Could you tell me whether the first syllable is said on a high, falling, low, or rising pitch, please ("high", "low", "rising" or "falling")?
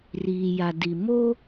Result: low